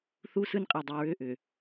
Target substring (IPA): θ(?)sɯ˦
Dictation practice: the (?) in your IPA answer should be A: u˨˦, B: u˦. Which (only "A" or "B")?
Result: B